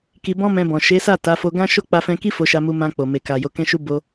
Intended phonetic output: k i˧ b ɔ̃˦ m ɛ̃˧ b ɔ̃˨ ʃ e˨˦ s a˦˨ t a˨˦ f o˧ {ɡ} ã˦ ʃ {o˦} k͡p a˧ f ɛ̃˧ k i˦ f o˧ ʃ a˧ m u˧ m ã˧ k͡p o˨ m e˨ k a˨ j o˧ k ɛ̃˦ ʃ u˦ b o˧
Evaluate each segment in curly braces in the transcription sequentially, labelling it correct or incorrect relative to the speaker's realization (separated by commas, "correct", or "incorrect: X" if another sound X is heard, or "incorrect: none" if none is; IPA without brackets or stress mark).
correct, correct